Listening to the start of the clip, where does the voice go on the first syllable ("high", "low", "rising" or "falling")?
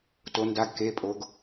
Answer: rising